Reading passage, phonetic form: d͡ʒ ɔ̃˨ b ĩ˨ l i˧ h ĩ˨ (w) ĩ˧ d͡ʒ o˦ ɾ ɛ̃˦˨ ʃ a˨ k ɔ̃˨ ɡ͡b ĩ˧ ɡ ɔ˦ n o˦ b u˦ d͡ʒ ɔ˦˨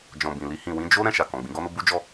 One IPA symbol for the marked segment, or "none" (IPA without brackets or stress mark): w